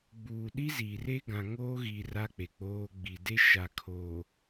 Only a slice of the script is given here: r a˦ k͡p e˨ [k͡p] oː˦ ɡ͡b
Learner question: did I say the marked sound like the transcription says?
yes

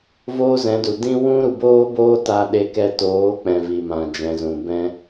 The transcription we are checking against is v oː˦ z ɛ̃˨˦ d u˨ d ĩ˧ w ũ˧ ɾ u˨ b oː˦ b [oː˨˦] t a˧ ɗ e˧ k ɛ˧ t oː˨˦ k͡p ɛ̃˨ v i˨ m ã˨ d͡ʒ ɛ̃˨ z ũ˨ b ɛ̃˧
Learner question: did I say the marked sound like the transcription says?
no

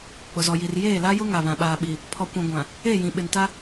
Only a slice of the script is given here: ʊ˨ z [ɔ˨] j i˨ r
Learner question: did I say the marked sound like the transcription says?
yes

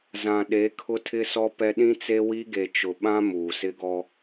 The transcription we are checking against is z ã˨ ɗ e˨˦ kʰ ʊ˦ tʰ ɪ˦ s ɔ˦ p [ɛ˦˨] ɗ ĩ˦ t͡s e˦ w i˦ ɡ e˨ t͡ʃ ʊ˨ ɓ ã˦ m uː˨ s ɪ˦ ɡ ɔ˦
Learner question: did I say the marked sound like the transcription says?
no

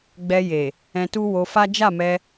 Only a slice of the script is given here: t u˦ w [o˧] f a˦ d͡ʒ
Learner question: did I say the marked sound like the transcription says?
yes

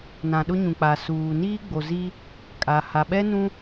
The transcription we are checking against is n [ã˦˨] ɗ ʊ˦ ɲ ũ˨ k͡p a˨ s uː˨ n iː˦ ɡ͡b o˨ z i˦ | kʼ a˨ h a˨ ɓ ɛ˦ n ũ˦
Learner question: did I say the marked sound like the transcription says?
no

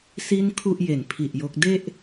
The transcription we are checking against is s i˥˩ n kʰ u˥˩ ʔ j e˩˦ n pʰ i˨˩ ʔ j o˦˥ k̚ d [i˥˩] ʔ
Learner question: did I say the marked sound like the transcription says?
no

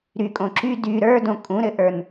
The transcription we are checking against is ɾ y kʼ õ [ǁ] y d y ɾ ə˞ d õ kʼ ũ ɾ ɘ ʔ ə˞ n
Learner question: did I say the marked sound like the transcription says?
yes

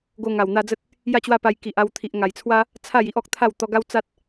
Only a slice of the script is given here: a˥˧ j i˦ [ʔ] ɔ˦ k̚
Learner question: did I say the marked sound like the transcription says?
yes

